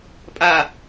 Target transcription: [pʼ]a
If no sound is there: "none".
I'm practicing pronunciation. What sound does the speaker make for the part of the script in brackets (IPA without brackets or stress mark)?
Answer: pʼ